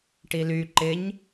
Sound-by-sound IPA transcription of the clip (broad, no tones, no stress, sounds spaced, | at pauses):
ʈ i l y ǃ ɪ ɲ